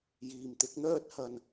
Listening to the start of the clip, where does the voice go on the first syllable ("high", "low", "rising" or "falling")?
low